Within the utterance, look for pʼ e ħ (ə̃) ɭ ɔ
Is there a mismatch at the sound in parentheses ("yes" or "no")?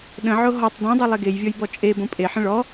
no